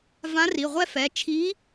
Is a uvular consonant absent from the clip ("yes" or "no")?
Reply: no